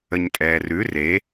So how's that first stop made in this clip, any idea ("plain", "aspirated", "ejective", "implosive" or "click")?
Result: ejective